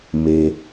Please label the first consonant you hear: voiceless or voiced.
voiced